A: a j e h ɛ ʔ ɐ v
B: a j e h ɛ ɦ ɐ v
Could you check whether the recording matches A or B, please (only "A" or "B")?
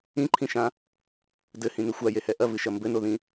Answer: A